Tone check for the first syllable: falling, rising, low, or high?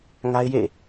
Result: high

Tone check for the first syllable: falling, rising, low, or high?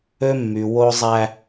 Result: high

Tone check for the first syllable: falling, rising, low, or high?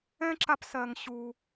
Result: high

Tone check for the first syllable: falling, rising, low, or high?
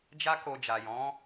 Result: high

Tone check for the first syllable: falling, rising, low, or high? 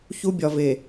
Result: high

